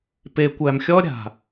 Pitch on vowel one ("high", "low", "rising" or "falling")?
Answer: low